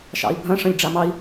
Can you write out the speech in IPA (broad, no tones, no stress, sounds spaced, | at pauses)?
ʃ ɑ̰ i̯ bʱ ɐ̃ ʂ ɐ̃ lʲ ɖ͡ʐ a m ɑ i̯